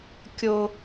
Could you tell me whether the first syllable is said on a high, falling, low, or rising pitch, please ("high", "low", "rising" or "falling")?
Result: high